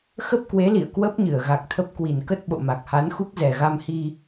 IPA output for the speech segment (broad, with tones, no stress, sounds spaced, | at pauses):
x ə˦˥ p̚ k w e˨˦ l ḭ˧˨ ə̯ k w ə˦˥ p̚ ɲ ɨ˧˩ ə̯ ɣ a˨˩ k̚ t̪ʰ ə˦˥ p̚ k w i˨˩ n k ə˦˥ t̚ ɓ o̰˧˨ m a˨˩ k̚ h a˨˦ n x u˦˥ k̚ z ɛ˨˩ ɣ a˧ m h i˧